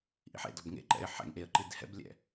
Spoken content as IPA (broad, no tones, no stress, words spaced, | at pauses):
ʔḭħḛ dɔbŋḛǃɛ̰ɪ̯ ħɛ̰ŋʔeə̯ǃid hɛ̰blʲɛ̰